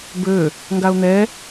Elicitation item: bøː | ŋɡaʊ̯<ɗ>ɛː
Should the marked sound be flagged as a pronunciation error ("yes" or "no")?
yes